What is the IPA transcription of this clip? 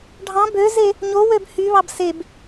ɖʱ ɑ̃ b ø z e | ɲ o w ø b h y β ɑ b s e b

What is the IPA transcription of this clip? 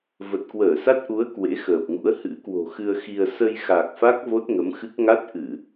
v ə˨˩ t̚ k w əː˧˩ s a˦˥ t̚ ʔ u˨˦ ə̯ k w ḛ˧˥ x əː˨˩ p̚ ŋ ṵ˧˥ ə̯ h ɨ̰˧˥ k w o̤˨˩ x ɨ˧ ə̯ x i˧ ə̯ s ə˧ j x a˨˩ k̚ f a˦˥ k̚ v o˦˥ t̚ ŋ ə˨˦ m x ɨ˦˥ k̚ ŋ a˦˥ t̚ ʔ ɨ˧˩˨

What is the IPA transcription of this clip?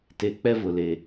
t e˨ k͡p ɛ˦ v ʊ˨ l e˨

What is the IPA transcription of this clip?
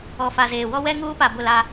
ɔ˨ f a˨ z eː˨ w ɔ˦ w ɛ˦ ŋ uː˦ p a˨ b ʊ˦˨ l a˦

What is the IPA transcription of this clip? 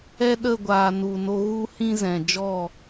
ɛ˦ ɗ ə˦˨ ɡʷ aː˨ n u˨ n o˧ ɣ u˦ h ĩ˦ z ɛ̃˨ d͡ʒ ɔ˦˨

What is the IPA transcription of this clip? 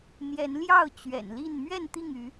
n̪ j ɛ˨˦ n l j ɑ˥˨ ʊ̯ t͡ɕ ɥ ɛ̰˨˩ n l i˥˨ n m ɥ ɛ˥˨ n t̪ i˥˨ ŋ y˨˦

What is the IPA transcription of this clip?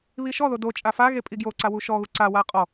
β i ʃ ɔ ð o d o t͡ʃʼ a f a ɣ e pʼ i ɡ j o ǀ a w u ʃ ɔ ɣ u ǀ a w a qʼ ɔ

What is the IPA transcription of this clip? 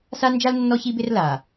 s a˦ n d͡ʒ a˦ l nː ɔ˦ ç i˦ b ɪ˦ r l a˨

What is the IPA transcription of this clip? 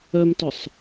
œ m t ʊ sˤ

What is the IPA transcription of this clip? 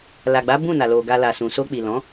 l a˨ ɡ͡b a˨˦ b ũ˦˨ n a˨ l o˨ ɡ a˧ l a˨ s ũ˨ s o˧ k͡p i˨ l ɔ̃˨˦

